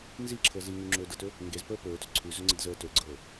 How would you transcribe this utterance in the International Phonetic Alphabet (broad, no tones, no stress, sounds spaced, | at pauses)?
n z i ǁʰ ɤ z i ŋ ʉ ŋ͡ǁ ɵː d ɤ t ɵ | ŋ ɡ e z p əː p ɵː t ɵ ǀʰ ʉ z ɵ ŋ͡ǀ ə d z əː t ɵ ɡ͡ǀ ɤː